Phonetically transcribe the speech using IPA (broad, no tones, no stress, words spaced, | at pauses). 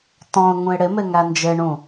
tɔ̃ʊ̯ ŋũɪ̯ɽɪmɪ ŋænd͡ʒɪɳũ